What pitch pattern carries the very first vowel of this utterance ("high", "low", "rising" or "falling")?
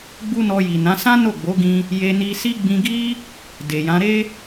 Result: high